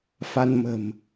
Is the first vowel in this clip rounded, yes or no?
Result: no